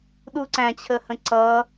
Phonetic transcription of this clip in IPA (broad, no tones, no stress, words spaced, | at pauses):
ɗuǀæ̃t͡ɕʰəhə̃ ǀʌ